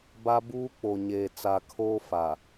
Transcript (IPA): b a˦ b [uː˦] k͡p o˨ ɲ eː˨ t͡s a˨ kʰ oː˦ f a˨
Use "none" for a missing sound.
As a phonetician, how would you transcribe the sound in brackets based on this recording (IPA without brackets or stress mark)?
uː˦